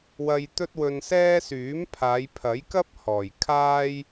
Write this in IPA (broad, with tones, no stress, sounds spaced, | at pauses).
w ɐ˧ j t̪ ɵ˥ t̚ w ɵ˧ n s ɛː˥ s yː˨˥ m pʰ aː˨˧ j pʰ ɐ˨˥ j k ɐ˥ p̚ h ɔː˨˩ j kʰ aː˥ j